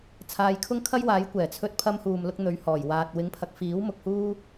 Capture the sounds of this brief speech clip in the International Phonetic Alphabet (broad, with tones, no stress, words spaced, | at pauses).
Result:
t͡sʰaː˧jkʰʊ˥ŋkʰɐ˥j waː˨˥jkʷɛː˨˩ t͡sʰɵ˧t̚pʰɐ˧m huː˨mlʊ˧k̚ n̪ɵ˨˧ɥhɔː˨˩j waː˨t̚ wɪ˨˥ŋpʰɐ˨k̚fiː˨˥w mʊ˧k̚huː˥